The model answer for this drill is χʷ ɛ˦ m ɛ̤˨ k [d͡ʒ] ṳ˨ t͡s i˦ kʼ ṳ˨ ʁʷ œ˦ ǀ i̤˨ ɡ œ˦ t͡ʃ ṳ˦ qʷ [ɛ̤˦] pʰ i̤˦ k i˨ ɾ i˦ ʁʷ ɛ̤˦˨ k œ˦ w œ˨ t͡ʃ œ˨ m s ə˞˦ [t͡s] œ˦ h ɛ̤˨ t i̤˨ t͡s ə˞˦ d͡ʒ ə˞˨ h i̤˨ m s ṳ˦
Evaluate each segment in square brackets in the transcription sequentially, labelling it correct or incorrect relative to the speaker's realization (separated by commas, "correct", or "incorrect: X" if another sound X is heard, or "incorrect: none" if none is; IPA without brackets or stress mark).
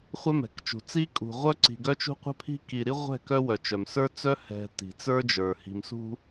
incorrect: t͡ʃ, correct, correct